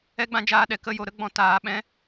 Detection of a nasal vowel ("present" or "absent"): present